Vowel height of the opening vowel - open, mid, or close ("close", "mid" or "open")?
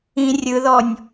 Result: close